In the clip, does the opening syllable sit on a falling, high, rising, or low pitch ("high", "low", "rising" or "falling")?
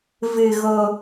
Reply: low